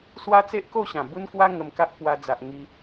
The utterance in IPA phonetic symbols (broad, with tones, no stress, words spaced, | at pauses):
swa˦t͡se˦ʔko˥˧ ɕã˨˩bu˦nkwa˦ ŋə˧mka˦ʔpwa˧d͡za˨ʔ ŋi˧